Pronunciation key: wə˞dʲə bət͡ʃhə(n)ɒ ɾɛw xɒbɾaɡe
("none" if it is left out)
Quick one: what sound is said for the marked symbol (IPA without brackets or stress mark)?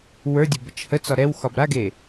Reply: t͡s